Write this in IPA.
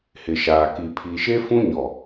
h ɪ˨ ʃ aː˨ k i˨ pʰ i˨ ʃ e˦ f ũ˦ ɲ ɔ˨

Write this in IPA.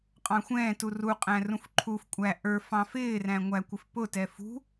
qʼ ɑ̃ xʷ ɛ̃ː t u r u qʼ æ̃ r ũ f ǃʰ u f kʷʼ æ ʔ ə˞ f ɑ̃ f ɪː r æ̃ ŋʷ æ kʷ ɪ f p ʊ t ɛ f ṳ

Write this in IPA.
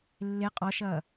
lː e qʼ ɔ ʃ ɐː

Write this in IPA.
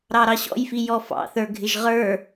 ɾ ɑ ɾ ɑ ɕ ɔ̰ j f i j ɔ f ɑ̰ θ ə˞ ɡʱ ɪ ʒ ʁ ə˞

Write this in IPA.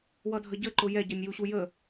w ʌ dʱ ə ɟ ə ǃ ʊ j ɛ ɟ ʌ nʲ j u ɕ u j ə

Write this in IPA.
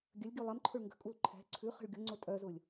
ɡʲ ə lʲ ɡʲ u lˠ ɛ m ǃʰ ʊ ɭ ŋ ɡ ə̤ kʼ u l ǃʰ ɛ̤ ǀʰ ʉ χ ə̤ ɭ ɡʲ ʊ ŋ͡ǀ ʊ tʼ œ z ʊ lʲ

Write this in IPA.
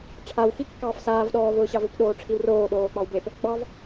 ʈ͡ʂʰ a w x i kː ɑː f s aː v ɗ ɔː v ʊː ɕ ɑ v ʊ p ɗ oː ʈ͡ʂʰ i w r oː ɗ oː k͡p ɑ w b e p | ɡ͡b ɑ v

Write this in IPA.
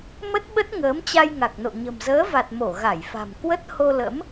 m ə˦˥ t̚ ɓ ə˦˥ t̚ ŋ əː˨˦ m t͡ɕ a˧ j ŋ a˨˩ k̚ n o̰˧˨ ɲ ə̤˨˩ m z əː˨˦ v a˨˩ t̚ m o˧˩ ɣ a˧˩ j f a̤˨˩ m k w ə˦˥ t̚ h o˧ l ə̰˧˥ m

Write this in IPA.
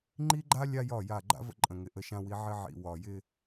ŋ͡ǃ i˦ ɡ͡ǃ a˦ lʲ a˦ j ɒ˦˨ j a˦˨ ɡ͡ǃ a̰˦ v ə̰˦ ǃʼ ə̃˨ ŋ ɪ˨ ʔ ə˦ ʃ ã˦ w i˦ ʕ ɪ˦ ʕ ḭ˨ w ɒ˨ j ɪ˦

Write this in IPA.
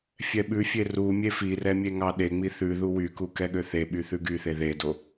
fʲ ɛ ɓ ʉ fʲ e r u mʲ e f i r ɛ mʲ e ŋ ɑ ɗ e ŋ͡m i θ ʉ ð u w y k u k ɛ ɠ ø θ e ɓ y θ ʉ ɡ y θ e ð e d o

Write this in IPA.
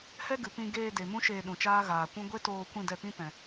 h ɛ˦ ɡ ɨ˨ p ĩ˧ ɡ eː˧ d e˨ m ũ˦ ʃ eː˧ ɗ ũ˨ t͡ʃ aː˦ ɣ aː˨ kʷ ũ˦ ɡʷ e˦ t oː˧ kʷ ĩ˦˨ d ɛ˧ p ĩ˦ p ɛ̃˨

